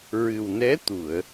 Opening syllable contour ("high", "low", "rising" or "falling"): low